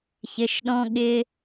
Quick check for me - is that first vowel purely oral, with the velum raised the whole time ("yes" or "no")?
yes